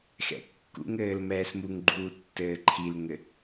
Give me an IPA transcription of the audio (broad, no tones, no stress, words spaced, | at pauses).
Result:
xɛ̰kːṵŋɘːl mɛːsmuŋɡ͡ǃuː tːɘːǃʰilŋɘ